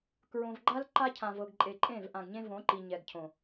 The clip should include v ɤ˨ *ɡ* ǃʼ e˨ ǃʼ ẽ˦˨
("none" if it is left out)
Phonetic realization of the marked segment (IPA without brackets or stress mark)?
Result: ɡ